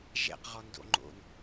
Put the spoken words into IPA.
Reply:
ʒ ɛ̰ q ʁ ɔ n d o̰ ŋ͡ǃ o̰ n

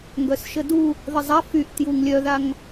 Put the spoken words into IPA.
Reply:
ŋ ɡ œ s ʃ ə d u | ð ə zˤ a f y ʔ t j u ŋ lʲ œ ð a ŋ

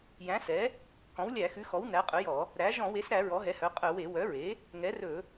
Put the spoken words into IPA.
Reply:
j æ̃˩˥ s ɛ˩˥ | k ɔ̃˩˥ w lʲ æ˧˩˧ x ʉ˩˥ x ɔ˩˥ w n æ˩˥ qʼ ɵ˩˥ j ɔ˧˩˧ | ɾ æ˩˥ ʒ ɔ̃˧˩˧ w e˩˥ s ɾ æ˧˩˧ ɹ ɔ˩˥ ɦ ɛ˩˥ h œ˩˥ qʼ œ˧˩˧ w e˧˩˧ w œ˩˥ ɹ e˩˥ | ŋ ɛ˩˥ r ɵ˧˩˧

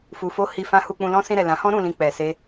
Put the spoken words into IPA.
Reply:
f u˧ f o˦ h i˧ f ã˦ h u˧ k͡p ũ˧ l ɔ̃˦ s ĩ˧ ɾ ɛ˨ l ã˨˦ h ɔ̃˦ ɾ ũ˧ l ĩ˧ k͡p ɛ˨ s e˧

